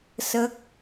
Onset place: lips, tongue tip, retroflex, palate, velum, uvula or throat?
tongue tip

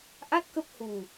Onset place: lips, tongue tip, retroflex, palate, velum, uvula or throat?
throat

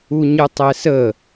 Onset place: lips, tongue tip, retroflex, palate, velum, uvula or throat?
palate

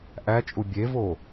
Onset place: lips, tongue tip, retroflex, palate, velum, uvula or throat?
throat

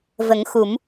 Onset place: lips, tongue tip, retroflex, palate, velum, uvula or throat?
lips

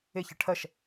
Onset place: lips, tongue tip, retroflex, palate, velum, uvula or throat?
palate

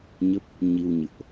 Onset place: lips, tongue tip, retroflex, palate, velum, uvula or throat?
palate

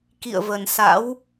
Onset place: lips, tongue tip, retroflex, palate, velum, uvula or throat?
velum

